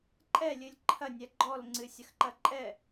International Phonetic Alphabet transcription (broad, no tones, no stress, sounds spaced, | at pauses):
ǃʼ ɛ lʲ ɨ lʲ ǃʰ ɐ nʲ ɛ ɡ͡ǃ ɔ l ŋ͡ǀ ɨ sʲ ɐ x ǃ ɐ ǃʼ ɛ